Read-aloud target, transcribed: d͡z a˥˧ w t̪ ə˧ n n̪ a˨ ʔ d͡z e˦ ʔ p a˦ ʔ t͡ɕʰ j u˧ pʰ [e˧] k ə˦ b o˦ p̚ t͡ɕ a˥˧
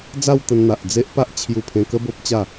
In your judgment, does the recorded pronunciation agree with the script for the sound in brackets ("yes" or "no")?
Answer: no